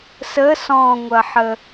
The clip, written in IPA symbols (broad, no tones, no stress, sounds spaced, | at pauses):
s ə s ɔ̃ ŋʷ ɐ ħ ə